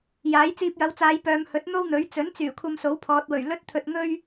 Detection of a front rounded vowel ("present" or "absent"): present